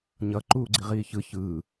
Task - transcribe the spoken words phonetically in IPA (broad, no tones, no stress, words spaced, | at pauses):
ɲʌ ǃuːɡ͡ǀiʁiːçɯ çɯː